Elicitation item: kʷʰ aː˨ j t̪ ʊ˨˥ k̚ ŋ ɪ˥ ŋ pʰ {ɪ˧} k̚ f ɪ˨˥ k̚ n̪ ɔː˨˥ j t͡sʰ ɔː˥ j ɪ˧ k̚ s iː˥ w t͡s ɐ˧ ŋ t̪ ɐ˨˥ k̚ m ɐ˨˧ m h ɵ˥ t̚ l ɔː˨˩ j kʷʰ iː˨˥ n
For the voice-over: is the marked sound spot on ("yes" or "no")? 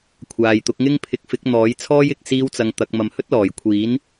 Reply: yes